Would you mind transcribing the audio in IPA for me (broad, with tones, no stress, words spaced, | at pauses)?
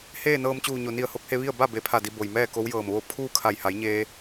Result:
heː˥˨nɤː˧mt͡ɕuː˧˩ɲo˩ ni˧˩ə̯ho˧˥k̚he˧ ʋi˥˨ə̯ ba˥˨ be˩˧pʰa˧˩di˩˧ bo˩j mɛː˥˨ko˧˥wjɤː˧˩m ʋoː˧p̚kʰuː˥˨kʰa˧˩j ha˩˧jɲeː˧